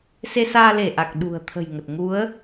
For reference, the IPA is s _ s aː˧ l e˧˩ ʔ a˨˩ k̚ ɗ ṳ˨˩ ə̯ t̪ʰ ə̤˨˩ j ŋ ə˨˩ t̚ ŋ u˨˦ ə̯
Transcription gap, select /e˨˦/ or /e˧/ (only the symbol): e˧